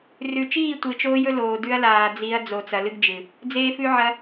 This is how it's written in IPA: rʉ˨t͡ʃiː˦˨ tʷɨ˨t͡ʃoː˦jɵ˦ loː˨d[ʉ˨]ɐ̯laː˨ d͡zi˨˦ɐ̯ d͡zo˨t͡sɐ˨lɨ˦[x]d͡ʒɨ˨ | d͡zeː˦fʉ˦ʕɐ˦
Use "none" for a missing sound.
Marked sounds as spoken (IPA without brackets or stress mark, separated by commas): ʉ˦, ɡ